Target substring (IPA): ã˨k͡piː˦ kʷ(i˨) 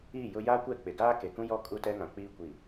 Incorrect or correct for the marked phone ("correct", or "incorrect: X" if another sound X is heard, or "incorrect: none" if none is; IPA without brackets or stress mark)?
correct